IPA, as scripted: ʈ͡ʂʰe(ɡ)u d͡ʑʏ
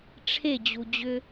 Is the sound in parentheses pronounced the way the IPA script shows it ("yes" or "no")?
no